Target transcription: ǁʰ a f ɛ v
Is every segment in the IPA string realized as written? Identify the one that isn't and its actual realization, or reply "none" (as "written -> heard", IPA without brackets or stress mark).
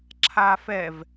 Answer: none